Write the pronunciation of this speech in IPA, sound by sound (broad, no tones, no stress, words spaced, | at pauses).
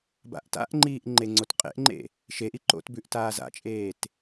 ba̰ʔta̰ʔŋ͡ǃiːʔ ŋ͡ǃeŋ͡ǀotqʼḛʔŋ͡ǃḛ | ʃeʔi ǃo̰tbʉʔ taːza̰t͡ʃʼeːt